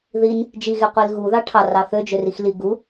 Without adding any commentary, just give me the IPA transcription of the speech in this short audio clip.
ð i n | d͡ʒ i ɣ e qʷ i l ɣ u ð ɑ ʈʰ ɑ r ɑ θ ø d͡ʒ ø r i x l i ɡ u

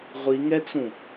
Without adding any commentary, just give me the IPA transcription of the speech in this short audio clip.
ʁʷ i ŋ ɛ t͡s ũ

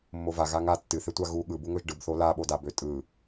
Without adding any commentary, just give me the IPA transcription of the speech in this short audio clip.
mː o v a ɣ a ŋ a tː ɨ θ e tʷ a ɣ u ɠ ɯ b u ŋ ɵ ʒ ɖ ɯ b θ o l a ɓ o d a b ø tʼ ɯ

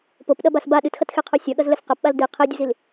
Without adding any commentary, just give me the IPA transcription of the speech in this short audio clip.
p o p ɗ ɐ b a s b a ɗ ɨ t x ɐ t x e qʰ o sʲ ɐ ɠ ɐ z l ɘ s q ɐ p ɓ a l d i qʰ e dʲ u z i l

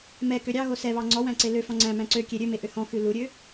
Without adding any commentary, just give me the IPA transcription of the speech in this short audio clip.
m ɛ k ø ɾʲ ɑ ɣ o s ɛ β ɑ ŋ͡ǀ ɔ w æ̃ ǀ e l ø f ɔ̃ ŋ͡ǀ æ̃ m æ̃ ǀ ø kʲ e ɾʲ ø m e ʔ ø h ɔ̃ x ʉ l u ɾʲ ø

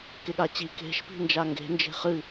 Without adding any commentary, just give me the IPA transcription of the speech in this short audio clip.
k e ɠ a t͡ɕ i k e̤ ʃ p i̤ n d͡ʒ a ŋ ɡ e̤ n d͡ʒ e̤ χ ɨ

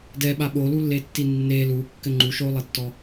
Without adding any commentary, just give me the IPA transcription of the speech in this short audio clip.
d ɛ ɓ a ɓ o l u lː e tː i nː e l u kː ɘ ŋ͡ǃ u ʃ o lˠ ɘ tː ɔ

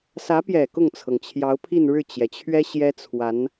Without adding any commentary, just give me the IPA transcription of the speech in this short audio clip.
s ä˧˥ p j ɛ˨˩ k ʊ˥˩ ŋ t͡sʰ ɤ˩ ŋ t͡ɕʰ j ɑ˧˥ ʊ̯ pʰ i˥˧ n ɻ ɻ̩˥˩ t͡ɕ j ɛ˩ t͡ɕʰ ɥ ɛ˥ ɕ j ɛ˥ t͡sʰ w a˧˥ n

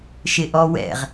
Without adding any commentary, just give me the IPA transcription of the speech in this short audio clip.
ʃ ɪ ʔ ɔ w ɛ̰ ʁ

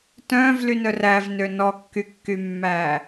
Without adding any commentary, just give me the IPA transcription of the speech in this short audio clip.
t œ̃ː v l y n œ r æ v n ø n ɔ kː y kː y mː æː

